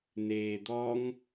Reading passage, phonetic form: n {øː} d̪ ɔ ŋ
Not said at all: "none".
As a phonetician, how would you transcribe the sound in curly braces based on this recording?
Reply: eː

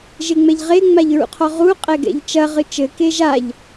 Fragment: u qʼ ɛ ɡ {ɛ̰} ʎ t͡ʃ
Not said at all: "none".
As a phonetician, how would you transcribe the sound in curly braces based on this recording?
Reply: ɛ̰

